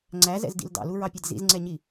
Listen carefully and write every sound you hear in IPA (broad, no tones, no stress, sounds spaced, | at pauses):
ŋ͡ǀ æ z ɛ̰ z d ḭ l d ɑ̰ l u ɹ ɑ pʲ ɛ d z ḭ z ŋ͡ǀ ɛ ɲ i